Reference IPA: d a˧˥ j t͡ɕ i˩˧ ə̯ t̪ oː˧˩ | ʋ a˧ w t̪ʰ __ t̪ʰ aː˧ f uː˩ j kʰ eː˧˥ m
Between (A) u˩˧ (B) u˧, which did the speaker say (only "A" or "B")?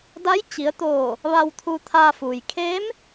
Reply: B